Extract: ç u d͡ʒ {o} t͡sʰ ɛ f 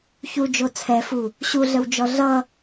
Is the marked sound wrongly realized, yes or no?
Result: no